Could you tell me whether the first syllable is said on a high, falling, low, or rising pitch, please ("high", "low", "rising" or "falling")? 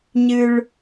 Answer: high